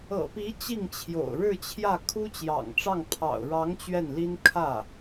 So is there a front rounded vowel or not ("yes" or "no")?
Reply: no